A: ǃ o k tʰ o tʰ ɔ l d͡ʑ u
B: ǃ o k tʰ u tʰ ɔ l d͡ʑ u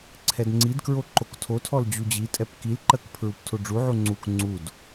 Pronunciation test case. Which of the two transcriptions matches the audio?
A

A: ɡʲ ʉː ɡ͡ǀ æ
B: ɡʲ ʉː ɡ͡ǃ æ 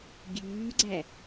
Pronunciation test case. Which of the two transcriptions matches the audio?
A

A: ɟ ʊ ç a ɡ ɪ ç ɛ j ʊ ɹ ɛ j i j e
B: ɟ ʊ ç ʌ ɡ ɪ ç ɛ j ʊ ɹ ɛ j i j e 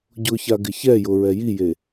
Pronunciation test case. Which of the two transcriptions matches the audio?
A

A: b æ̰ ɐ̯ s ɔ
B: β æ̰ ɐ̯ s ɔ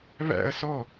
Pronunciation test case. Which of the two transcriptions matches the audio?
B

